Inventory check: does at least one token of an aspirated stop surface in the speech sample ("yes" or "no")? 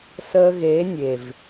no